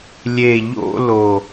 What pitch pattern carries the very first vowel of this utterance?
low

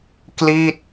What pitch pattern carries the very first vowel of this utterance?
falling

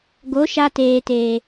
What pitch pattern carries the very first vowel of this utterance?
rising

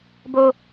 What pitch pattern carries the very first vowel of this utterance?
low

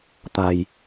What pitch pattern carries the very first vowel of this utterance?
low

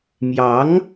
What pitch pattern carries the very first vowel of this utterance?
rising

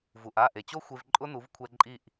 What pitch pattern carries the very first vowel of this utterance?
low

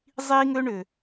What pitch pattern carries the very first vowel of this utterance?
high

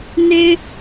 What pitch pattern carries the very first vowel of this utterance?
high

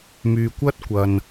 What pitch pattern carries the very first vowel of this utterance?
low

